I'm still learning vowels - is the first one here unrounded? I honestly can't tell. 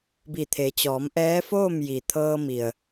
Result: yes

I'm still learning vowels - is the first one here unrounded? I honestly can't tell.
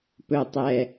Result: no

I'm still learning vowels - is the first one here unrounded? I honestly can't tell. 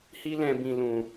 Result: yes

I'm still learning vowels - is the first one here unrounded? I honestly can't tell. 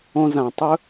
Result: no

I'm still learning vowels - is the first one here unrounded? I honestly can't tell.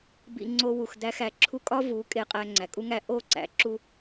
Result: yes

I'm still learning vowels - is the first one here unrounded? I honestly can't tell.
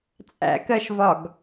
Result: yes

